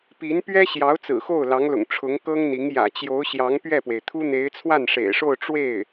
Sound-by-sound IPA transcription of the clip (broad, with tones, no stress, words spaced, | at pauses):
pi˧˥npɥɛ˥ɕjɑ˧˥ʊ̯ t͡sɹ̩˨˩xo˥˩ʊ̯lɑ˧˥ŋlʊ̰˨˩ŋ ʈ͡ʂʰʊ˧˥ŋkɤ˥ŋn̪i˧˥ŋ jä̰˨˩t͡ɕjo˧˥ʊ̯ ɕjɑ˧˥ŋ pɥɛ˥˩pwe˩ɪ̯t̪ʰu˥n̪e˧˥ɪ̯ t͡sʰwa˥˩nʂḛ˨˩ɪ̯ʂo˥˧ʊ̯ ʈ͡ʂwe˥˩ɪ̯